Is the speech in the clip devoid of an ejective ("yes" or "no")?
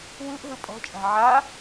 no